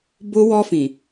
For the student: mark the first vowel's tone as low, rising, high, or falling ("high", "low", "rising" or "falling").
high